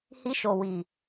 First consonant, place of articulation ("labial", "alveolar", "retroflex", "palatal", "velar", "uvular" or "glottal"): glottal